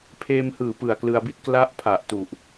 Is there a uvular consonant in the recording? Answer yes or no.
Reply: no